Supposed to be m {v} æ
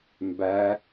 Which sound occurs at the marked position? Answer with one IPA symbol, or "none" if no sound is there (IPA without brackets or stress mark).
b